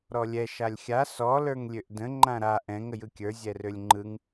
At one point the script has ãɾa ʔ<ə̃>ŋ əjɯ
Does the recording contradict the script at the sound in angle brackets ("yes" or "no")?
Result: yes